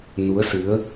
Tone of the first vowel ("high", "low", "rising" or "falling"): rising